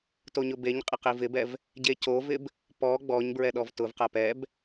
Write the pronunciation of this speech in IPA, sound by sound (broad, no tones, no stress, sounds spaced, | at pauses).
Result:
t o ɲ ʊ b e ɲ qʼ ɪ q i v ɪ b ɛ v | ɟ e c o v ɪ b | p ɔ ɡ͡b ɔ ɲ b ɹ ɛ ɗ ɔ v t ʊ v q a p ɛ b